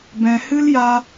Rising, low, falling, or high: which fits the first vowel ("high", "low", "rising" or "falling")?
low